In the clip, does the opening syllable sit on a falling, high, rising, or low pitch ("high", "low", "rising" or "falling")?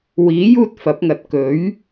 rising